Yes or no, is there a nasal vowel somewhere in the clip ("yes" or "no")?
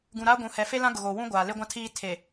yes